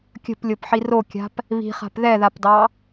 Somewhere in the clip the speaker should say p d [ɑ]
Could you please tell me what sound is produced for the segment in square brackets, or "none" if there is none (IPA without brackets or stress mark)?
ɑ